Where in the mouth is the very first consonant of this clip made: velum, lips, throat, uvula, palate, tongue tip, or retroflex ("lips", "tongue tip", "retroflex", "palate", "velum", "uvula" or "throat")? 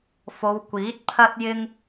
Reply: lips